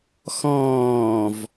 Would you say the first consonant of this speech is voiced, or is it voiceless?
voiceless